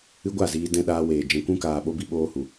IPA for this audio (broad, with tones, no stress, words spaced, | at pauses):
ɨ˦ ɡʷa˦˨ziː˧ dɛ̃˧ɗaː˧ weː˨ d͡ʒɛ̃˧kʷũ˦ kaː˧ɓo˦ bi˧ɓoː˧hu˨